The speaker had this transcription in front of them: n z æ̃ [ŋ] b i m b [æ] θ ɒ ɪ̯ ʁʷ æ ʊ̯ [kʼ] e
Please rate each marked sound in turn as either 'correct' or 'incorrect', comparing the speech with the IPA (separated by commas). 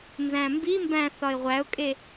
incorrect, incorrect, correct